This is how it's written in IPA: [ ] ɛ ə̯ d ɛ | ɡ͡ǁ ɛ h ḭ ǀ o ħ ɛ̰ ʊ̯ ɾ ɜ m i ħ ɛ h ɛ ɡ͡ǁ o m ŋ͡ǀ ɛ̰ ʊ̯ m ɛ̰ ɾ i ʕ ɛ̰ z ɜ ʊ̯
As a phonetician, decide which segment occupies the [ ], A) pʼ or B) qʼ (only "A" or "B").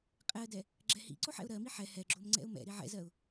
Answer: B